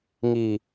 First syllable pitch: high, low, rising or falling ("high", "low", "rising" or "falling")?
low